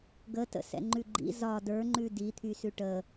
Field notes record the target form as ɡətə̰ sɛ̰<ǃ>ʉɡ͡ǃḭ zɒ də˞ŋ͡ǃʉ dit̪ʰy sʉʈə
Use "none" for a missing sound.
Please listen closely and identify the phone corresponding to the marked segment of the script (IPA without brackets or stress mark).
ŋ͡ǃ